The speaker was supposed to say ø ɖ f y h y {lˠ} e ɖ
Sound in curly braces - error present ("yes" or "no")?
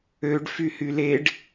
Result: yes